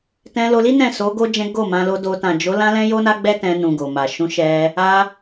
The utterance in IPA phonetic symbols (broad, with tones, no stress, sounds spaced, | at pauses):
t ɛ̃˧ l o˧ l i˦ n ɛ̃˦˨ s o˨˦ ɡ o˦ d͡ʒ ɛ̃˦ ɡ o˦˨ m ã˧ l o˧ d o˧ t ã˨ d͡ʒ o˨˦ l ã˦ l ɛ̃˦ j o˦ n a˦ ɡ͡b ɛ˦ t ɛ̃˧ n ũ˨ ɡ o˨ m a˨ ʃ ũ˨˦ ʃ ɛ˧ | a˧